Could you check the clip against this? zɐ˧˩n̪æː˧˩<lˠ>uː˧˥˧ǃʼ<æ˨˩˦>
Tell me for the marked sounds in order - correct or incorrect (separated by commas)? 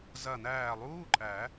correct, correct